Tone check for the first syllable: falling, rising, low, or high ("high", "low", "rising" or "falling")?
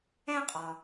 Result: high